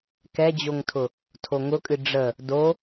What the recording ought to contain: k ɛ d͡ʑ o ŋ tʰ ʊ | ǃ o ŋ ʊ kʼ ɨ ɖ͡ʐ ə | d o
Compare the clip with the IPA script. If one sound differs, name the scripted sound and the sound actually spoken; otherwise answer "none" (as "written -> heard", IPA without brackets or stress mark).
ǃ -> tʰ